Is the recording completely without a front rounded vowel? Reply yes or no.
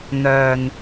no